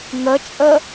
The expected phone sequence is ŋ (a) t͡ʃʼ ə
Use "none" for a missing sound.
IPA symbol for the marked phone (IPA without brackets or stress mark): ə